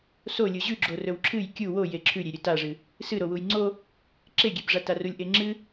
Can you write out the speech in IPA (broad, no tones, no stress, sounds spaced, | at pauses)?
s o lʲ u ʑ ʉ ɡ͡ǁ o r ɵ w ǁʰ ɨ j kʲ u w o j e ǁʰ ʉ ɾʲ e ɾʲ ɵ t a ʐ ɨ | s ɨ ɾ o w u j ŋ͡ǀ o | ǁ e ɡʲ e b ʐ a t a r u lʲ ʔ e ŋ͡ǁ ɨ